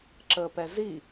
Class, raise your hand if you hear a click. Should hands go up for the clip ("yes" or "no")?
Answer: yes